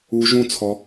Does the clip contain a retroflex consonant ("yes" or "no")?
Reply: no